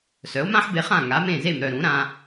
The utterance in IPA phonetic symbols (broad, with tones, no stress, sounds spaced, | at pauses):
s œ˩˥ o̯ m ã˥ ħ b e˧ χ ã˥˩ ŋ a˩˥ m ẽ˥˩ z e˥˩ m ɾ œ˥˩ ɾ ũ˩˥ ɾ ã˧